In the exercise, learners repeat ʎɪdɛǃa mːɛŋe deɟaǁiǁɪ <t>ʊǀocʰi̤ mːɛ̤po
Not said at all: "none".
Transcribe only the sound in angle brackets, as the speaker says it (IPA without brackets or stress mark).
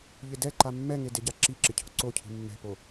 cʰ